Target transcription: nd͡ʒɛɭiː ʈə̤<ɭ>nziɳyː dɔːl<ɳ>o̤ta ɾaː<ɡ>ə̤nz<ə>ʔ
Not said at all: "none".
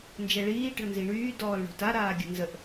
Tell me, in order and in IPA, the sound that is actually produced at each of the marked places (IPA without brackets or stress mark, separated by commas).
ɭ, ɳ, ɡʲ, ə